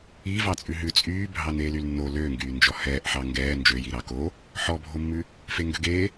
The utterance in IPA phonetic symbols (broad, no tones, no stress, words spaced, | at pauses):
i vɑt͡sʼʉɦʉ t͡sʼyː bʱɑneːlylnːo løŋɡyː nd͡ʒɔhɛːʔħɑ ŋɡɛː nd͡ʒøji ɾɑko | ħɔbʱomːʉ | feŋɡøɡeː